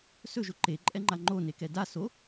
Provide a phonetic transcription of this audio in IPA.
sɵʒʊ ǃe ǃʼɛŋ͡ǃaŋ͡ǃo nekɛda so

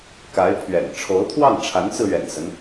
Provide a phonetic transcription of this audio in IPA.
ka˧˥ɪ̯ pʰɥɛ̰˨˩n ʈ͡ʂʰo˧˥ʊ̯t̪ʰwɑ˥˩ŋʈ͡ʂʰa˧˥nt͡sɹ̩˧ ɥɛ̰˨˩nsə˦n

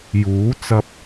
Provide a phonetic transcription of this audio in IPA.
juː˨˥ t͡sɐ˧p̚

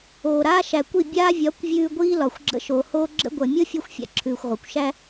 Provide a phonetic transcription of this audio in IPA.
oː˨ɾaː˦ʃæ˨kʷi˦˨ bʲaː˦vʲɒ˨˦kʷvʲʉː˧ ɡʷiː˦lɒ˨xʷ ɡ͡ǁə̰˧ʃo˨hoː˦ ɡ͡ǁə̰˦ɡʷɐ˨ mʲo˦fʲo˧xʷfʲa̰˨ ǁʰʉː˨xʷʁʷa˨kʷ ʃæ˦

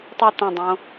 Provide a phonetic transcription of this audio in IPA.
tˤy t̪ɐ̃dˤõ

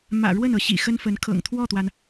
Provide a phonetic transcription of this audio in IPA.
mä̰˨˩ɻwə˥˩n ɤ˧˥ɕḭ˨˩xə˥nfə˧˥n kʰɤ̰˨˩ŋt̪ʰwɔ˥˩t̪wa˩n

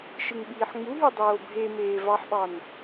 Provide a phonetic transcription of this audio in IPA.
ʃɯŋɓiːħŋ͡muɦy dˤoːbʱemeː vɑħɓɑn

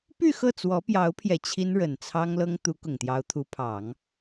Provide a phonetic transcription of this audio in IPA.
py˥˧ xɤ˥˩t͡swɔ˧˥pjɑ˧˥ʊ̯pʰjɛ˨˩ t͡ɕʰi˥nɻə˨˩nt͡sʰɑ˥ŋ lɤ˥ŋ t̪u˧˥ kʊ˨˩ŋt̪jɑ˧˥ʊ̯t̪ʰu˧˥pʰɑ˨˩˦ŋ

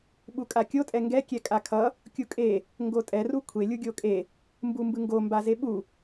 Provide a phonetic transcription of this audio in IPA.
ɓukʼakʲo tʼɛŋɡɛ kʲɛkʼakʰʌ | kʲukʼe | ŋɡotʼɛ rukʷʰe lʲuɡʲokʼe | mbumbɯŋɡo mbazeɓu

